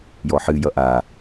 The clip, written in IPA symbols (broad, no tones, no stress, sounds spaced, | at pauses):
j ɔ ħ ɨ j ʌ ʔ a